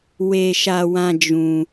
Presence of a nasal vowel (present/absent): present